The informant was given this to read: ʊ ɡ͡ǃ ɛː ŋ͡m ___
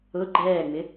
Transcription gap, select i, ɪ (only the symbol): ɪ